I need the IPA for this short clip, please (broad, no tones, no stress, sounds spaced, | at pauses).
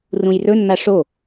r ũ j r ɵ nː a ʂ o